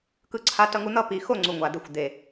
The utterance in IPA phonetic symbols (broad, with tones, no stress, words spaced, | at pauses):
kɯ˧ǀʰa˧ tʌ˧ŋu˧n̪ʌ˥˧pi˨˩ xo˥˧ŋ͡ǀu˨˩ŋʷa˨˩ d̪e˧xʷd̪e˨˩